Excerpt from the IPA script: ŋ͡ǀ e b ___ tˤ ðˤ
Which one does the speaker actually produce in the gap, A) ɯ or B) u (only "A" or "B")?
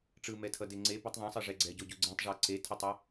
A